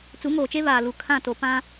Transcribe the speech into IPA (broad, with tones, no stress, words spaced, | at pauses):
t͡su˨˦ŋoː˨t͡ʃe˦ βaː˨lu˨ kʰã˦˨to˨pã˦